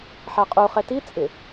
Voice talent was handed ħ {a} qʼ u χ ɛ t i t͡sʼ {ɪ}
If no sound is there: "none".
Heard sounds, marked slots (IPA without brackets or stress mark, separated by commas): a, ɪ